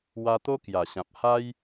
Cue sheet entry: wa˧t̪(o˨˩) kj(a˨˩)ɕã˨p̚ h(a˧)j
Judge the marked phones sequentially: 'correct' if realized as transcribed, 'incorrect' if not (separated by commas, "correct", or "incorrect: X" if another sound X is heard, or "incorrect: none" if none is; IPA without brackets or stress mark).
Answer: incorrect: o˦, correct, incorrect: a˦